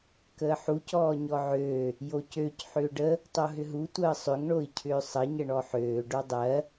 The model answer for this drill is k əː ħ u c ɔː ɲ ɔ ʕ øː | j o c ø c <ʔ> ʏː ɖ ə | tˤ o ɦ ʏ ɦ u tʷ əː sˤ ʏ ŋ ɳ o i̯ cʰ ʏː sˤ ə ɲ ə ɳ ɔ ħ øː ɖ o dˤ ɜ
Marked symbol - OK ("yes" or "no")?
no